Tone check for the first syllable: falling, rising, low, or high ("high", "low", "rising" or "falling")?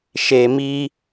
low